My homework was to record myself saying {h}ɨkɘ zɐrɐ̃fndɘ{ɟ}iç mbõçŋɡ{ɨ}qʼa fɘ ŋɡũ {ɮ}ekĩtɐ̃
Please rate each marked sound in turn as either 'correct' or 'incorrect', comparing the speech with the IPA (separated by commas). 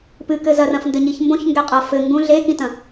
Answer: incorrect, incorrect, incorrect, correct